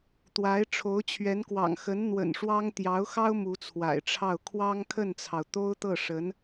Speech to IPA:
t̪ w a˧˥ ɪ̯ ʈ͡ʂʰ o˧˥ ʊ̯ t͡ɕʰ ɥ ɛ˧˥ n k w ɑ̰˨˩ ŋ x ə˧˥ n n̪ w ə̰˨˩ n ʂ w ɑ˥ ŋ t̪ j ɑ˧˥ ʊ̯ x ɑ˥ ʊ̯ m u˧˥ t͡sʰ w a̰˨˩ ɪ̯ ʈ͡ʂʰ ɑ˥˩ ʊ̯ kʰ w ɑ˥ ŋ kʰ ə˥˩ n t͡sʰ ɑ˩ ʊ̯ t̪ o˥ ʊ̯ t̪ ɤ˥˩ ʂ ə˧˥ n

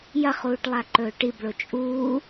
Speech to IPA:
j ɐ χ uː ʈ lˠ a ǃ ɵː ʈ i b ɭ o t͡ʃʼ uː

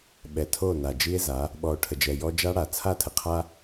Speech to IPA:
ɓ ɛ˨ tʰ o˦˨ n a˨ d͡ʒ i˦ e̯ z a˨˦ | ɓ ɔ˨ o̯ ʈʰ ə˨ d͡ʒ ɛ˨ j ɔ˦ d͡ʒ a˦ ɽ a˨ t͡sʰ a˦˨ tʰ ə˨ qʰ a˦

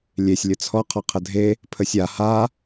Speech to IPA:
lʲ e sʲ lʲ ə t͡sʰ ɔ qʰ ɔ qʰ ə dʱ e | pʰ ə sʲ a h a

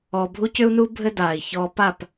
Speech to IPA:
ɔ˨ bʱ u˦ c ʏ˦ u̯ n u˦ bʱ ɘ˦ d aː˨ i̯ ç ɔː˧ p a˦˨ p

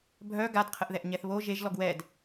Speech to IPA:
bʱ œ ɡ a d qʰ ə ʔ ð ɛ ʔ ɲ ɛ θ β o ʒ e ʒ l ɔ ɡ w ɛ d

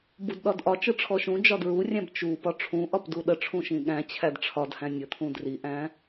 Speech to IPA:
b u d ɗ ɒ d ʔ ɒ t͡ʃ ɯ ʈ͡ʂʰ ɔ ʃ ũ d͡ʒ ɒ d ɹ u rʲ æ̃ b t͡ʃ u p ɒ ʈ͡ʂʰ ũ ʔ ɒ p d u ɗ ə ʈ͡ʂʰ ũ ʃ ĩ ɠ æ̃ t͡ɕʰ æ d ʈ͡ʂʰ ɒ d h æ̃ nʲ ə t̪ʰ ũ d r i ʔ æ̃

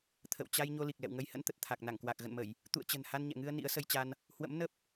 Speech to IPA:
t̪ʰ ə̰˧˨ w t͡ɕ a˧ j ɲ o˧ l i˨˩ k̚ l ɛ̰˧˨ w ŋ ə˨˦ j h ə̰˧˥ n t̪ ə˨˩ t̚ t̪ʰ a˨˩ k̚ n a˧˩ ŋ k w a˨˩ k̚ ɣ ə̰˧˨ n m ə˧˩˨ j | t̪ ṵ˧˨ ə̯ t͡ɕ ə̤˨˩ n h a˧ n ɲ ɛ̰˧˨ ŋ ɨ˧ ə̯ n ḭ˧˥ ə̯ s ə˧ j t͡ɕ a˧ n | h w ə̰˧˥ m n ə˦˥ p̚

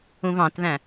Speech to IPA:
ũ v ɑ̃ t ð æ̃

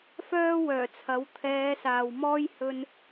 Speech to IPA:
f œː˥ w œː˨˩ t͡sʰ ɐ˨˥ w t̪ʰ ɛː˨˧ s aː˨ w m ɔː˥ j h ɵ˥ n

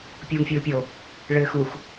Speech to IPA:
pʲ uː ŋ fʲ uː pʲ o | ɭ ɘː x u x

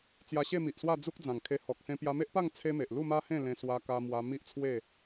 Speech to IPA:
t͡s j a˧ ɕ e˥˧ m i˨ ʔ s w a˥˧ d͡z u˦ k̚ d͡z ã˨˩ ŋ kʰ e˧ h ɔ˨ k̚ s ẽ˧ p j a˧ m e˦ ʔ p a˥˧ ŋ t͡sʰ e˦ m e˨ ʔ l u˥˧ m a˦ h ẽ˥˧ l ẽ˧ s w a˧ k a˧ m w a˧ m i˦ ʔ t͡sʰ w e˥˧

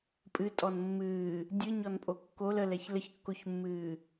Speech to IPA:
pʼ ɨ tʼ ɔ n mː ɨː | dʲ ɨ ɲ ɔ n pʼ o kː o l ə l ɛ ç l ə ç kː o ç mː ɨː

